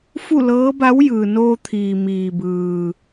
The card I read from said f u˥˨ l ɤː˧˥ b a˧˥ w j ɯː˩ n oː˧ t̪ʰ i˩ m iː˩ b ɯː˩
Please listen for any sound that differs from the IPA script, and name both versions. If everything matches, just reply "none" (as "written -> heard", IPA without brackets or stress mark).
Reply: i˩ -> iː˩